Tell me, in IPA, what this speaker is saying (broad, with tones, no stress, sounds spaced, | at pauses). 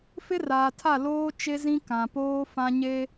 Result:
f ɪ˦ r aː˨ tʰ a˦˨ l oː˦ t͡ʃ e˦ z ĩ˦ k ã˨ p oː˦ f ã˦ ɲ e˦